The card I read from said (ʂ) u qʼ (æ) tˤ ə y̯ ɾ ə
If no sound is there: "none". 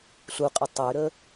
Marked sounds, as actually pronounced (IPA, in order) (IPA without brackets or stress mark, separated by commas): ɬ, ə